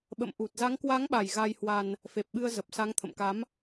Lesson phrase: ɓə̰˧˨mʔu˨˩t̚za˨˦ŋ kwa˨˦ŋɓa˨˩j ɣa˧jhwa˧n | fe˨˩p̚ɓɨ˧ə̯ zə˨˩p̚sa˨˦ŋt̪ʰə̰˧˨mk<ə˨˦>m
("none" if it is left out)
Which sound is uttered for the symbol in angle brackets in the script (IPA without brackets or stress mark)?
a˨˦